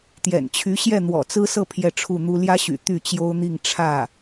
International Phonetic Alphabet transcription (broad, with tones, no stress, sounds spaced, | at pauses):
t̪ j ɛ̰˨˩ n t͡ɕʰ y˧˥ ɕ j ɛ˥˩ n̪ w ɔ̰˨˩ t͡s ɹ̩˥ s ɤ˥˧ pʰ j ɛ˥˧ ʈ͡ʂʰ u˥˩ n̪ u˥ l j ä˥ ɕ y̰˨˩ t̪ y˥˩ t͡ɕ j o˥ ʊ̯ n̪ i˥˧ ŋ ʈ͡ʂʰ ä˥˩